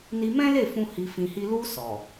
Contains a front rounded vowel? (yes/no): no